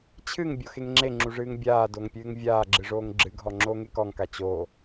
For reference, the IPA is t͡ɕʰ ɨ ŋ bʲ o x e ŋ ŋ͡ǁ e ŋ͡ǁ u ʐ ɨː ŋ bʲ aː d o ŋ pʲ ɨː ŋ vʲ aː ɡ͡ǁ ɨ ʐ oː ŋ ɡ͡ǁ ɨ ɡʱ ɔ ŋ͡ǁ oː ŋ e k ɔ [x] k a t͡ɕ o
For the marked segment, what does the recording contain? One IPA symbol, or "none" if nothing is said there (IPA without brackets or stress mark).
ŋ